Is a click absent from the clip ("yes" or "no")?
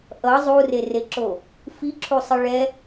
no